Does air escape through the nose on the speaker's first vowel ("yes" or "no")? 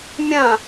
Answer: yes